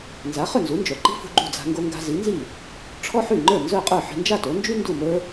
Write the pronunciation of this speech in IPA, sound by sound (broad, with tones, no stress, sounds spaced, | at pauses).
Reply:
n z a˩˥ χ ʏ˥˩ n z u˩˥ n d͡ʒ œ˩ ǃ i̤˥ f ṳ˧ ɡ͡ǃ ṳ˥˩ d͡z a̤˧ ŋ ɡ o˧ ŋ ɡ a̤˧ z i˩˥ n z i˥˩ | ʈ͡ʂʰ ɔ˥ ħ y˥˩ ŋ͡ǃ ə˞˥˩ n z œ˥˩ qʼ ə˞˥˩ ħ i̤˧ n d͡ʒ a˥˩ t o˩˥ n d͡ʒ y˥ n d u˥˩ m ə˞˥